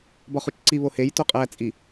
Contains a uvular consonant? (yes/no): yes